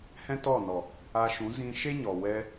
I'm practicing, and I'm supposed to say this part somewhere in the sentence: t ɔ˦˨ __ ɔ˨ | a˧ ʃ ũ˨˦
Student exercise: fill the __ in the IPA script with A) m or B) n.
B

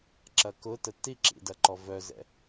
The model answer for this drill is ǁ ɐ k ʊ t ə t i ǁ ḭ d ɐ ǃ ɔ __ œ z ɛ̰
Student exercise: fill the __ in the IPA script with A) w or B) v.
B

